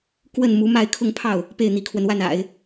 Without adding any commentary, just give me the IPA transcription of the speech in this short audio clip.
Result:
k w ə˥˩ n m u˧˥ m a˥˧ ɪ̯ kʰ ʊ˥˧ ŋ pʰ ɑ˥˩ ʊ̯ | p e˥˩ ɪ̯ n̪ i˧˥ kʰ w ə˧ n w a˥˩ n a̰˨˩˦ ɪ̯

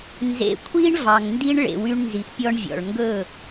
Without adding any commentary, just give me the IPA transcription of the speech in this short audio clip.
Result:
n z ḛ˨ kʷʰ i˧ ɳ v ɑ˨ ŋ n d i˦ ɳ ɭ ḛ˨ w y˧ ɳ n z i˨ ʔ pʲ ɔ˧ ɳ vʲ ɔ̰˨ ɭ ŋ ɡ ɵ˦˨

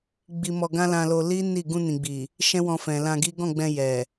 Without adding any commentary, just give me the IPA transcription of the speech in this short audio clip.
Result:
ɡ͡b i˧ m ɔ˧ ɡ ã˦ l ã˧ l o˧ l i˦ n i˦˨ ɡ ũ˧ n ĩ˨ ɡ͡b i˨ | ʃ ɛ̃˦ w ɔ̃˧ f ɛ̃˨ l ã˧ ɡ i˦ ɡ ɔ̃˦˨ ɡ͡b ɛ̃˧ j ɛ˨

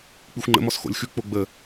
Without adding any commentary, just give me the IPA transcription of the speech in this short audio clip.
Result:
k͡p i xʷ ŋ͡ǃ ə̰ m ɔ s x o̰ lʲ x ʉ k͡p o ɡ͡b ə

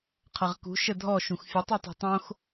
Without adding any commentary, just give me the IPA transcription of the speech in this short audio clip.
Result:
qʰ ɐ ʁ k ṳ ʃ ə dʱ ɔ ʃ ũ x fʲ ə tˤ y tˤ ṳ tˤ õ x

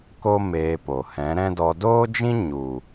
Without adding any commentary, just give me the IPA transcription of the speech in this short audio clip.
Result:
k o˦ m eː˧ p o˨ h ɛ̃˨˦ ɾ ɛ̃˦ d ɔ˧ d oː˦ d͡ʒ ĩ˦ ɲ u˨

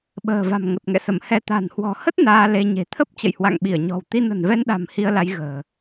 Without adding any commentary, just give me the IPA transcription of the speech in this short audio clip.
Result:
ɓ ə̤ː˨˩ v a̤˨˩ m ŋ ə˨˩ t̚ ŋ ɛ̰˧˨ s ə˧˩ m h ɛ˧ t̪ a̤˨˩ n h w ɔ̤˨˩ h ə˦˥ t̚ n aː˧ l e˧ ɲ e̤˨˩ t̪ʰ ə˦˥ p̚ t͡ɕ ə̰˧˨ j h w a̰˧˨ ŋ ɓ i˧˩ ə̯ ɲ ɔ̤˨˩ w t̪ i˧ n ə̤˨˩ n v ɛ˧ n ɗ a̤˨˩ m h i˧ ə̯ l a˨˦ j ɣ ə̤ː˨˩

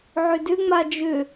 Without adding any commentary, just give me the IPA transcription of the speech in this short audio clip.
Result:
ʕ ʏ d ʏ ŋ͡m a d͡ʒ ʏ

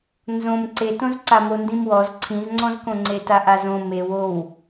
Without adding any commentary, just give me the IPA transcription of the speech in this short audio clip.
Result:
n z õ m ǀ e t õ z ǀ a m o n d ĩ m w ɔ z ǀʰ ĩ z ŋ͡ǀ ɔ̃ z k õ ŋ͡ǀ e t a ʔ a z õ m e w o w

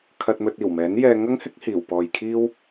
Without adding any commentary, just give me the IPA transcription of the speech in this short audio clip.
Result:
kʰ ɐ˧ t̚ m ɵ˧ t̚ iː˨˩ w m ɛː˨˥ n j ɛː˧ ŋ ɐ˥ ŋ h ɪ˥ k̚ h iː˨˩ w p ɔː˨ j kʰ iː˥ w

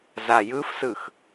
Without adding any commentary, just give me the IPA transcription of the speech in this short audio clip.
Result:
z a j ɯ f s ɯ x

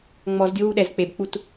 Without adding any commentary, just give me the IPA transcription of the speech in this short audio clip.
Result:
ŋ͡m ɔ z dʲ o w u ɗ ɛ z k͡p e b k͡p u t

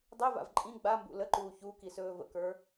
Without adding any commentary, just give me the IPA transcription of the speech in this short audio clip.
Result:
dˤ i v a̰ v ǃʼ ĩ ɡ͡b a m b ṵ l ə ǃ uː ç u k i s ɵː v ə̰ k ə˞

